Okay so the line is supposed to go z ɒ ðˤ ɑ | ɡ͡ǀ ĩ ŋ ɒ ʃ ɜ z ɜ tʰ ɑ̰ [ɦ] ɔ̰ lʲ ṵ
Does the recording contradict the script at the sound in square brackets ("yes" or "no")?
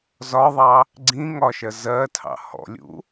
yes